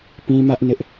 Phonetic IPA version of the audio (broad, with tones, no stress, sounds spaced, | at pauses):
p ĩ˦ m ä˦ ʔ n ɪ˦ ʔ